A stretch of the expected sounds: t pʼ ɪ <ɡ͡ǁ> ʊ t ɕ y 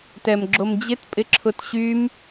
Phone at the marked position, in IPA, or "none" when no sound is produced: ǁʰ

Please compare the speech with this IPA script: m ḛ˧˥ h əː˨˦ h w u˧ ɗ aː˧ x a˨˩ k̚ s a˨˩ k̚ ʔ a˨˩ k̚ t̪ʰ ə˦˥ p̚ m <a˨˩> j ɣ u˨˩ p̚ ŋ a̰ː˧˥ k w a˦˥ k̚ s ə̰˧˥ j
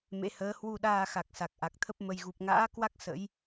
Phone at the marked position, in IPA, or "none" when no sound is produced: ə˨˩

